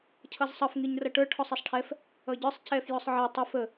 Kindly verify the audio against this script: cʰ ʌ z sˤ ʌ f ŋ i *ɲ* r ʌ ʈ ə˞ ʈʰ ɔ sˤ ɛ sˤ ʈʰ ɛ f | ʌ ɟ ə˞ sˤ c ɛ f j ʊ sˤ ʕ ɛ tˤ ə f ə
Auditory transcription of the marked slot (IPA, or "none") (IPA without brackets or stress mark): ɲ